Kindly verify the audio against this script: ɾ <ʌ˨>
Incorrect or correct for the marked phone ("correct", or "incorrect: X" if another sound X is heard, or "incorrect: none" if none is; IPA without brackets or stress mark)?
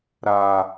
incorrect: a˨